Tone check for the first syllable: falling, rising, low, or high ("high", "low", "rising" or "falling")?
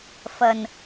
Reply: low